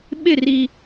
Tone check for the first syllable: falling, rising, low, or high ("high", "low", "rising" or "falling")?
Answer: falling